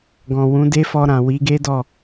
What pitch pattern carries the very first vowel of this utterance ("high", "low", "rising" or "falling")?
low